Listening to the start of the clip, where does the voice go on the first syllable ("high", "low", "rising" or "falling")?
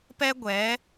high